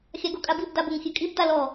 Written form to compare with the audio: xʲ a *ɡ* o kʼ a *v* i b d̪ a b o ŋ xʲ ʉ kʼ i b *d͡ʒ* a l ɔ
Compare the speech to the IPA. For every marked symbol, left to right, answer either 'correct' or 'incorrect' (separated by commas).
correct, incorrect, incorrect